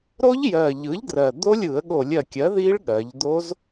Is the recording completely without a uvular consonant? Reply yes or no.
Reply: yes